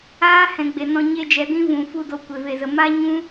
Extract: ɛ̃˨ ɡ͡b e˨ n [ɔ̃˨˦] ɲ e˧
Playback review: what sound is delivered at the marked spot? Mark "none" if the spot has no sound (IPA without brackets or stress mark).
ɔ̃˧